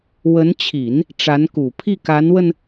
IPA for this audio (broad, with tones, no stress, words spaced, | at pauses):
wə˧˥nt͡ɕʰi˨˩˦n | ʈ͡ʂa˧˥nku˨˩ pʰi˥˩ka˧˥nwə˧n